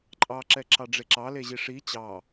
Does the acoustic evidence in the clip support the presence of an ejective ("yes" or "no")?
yes